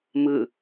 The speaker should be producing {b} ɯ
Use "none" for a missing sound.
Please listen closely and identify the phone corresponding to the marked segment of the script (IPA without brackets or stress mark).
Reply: m